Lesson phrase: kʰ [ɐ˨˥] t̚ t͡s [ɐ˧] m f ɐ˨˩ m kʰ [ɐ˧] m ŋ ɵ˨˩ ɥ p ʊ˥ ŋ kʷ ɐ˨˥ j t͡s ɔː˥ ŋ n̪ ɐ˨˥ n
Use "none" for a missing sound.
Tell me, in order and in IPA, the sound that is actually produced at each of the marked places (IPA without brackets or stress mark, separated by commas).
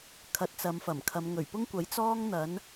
ɐ˨˥, ɐ˨˧, ɐ˨˧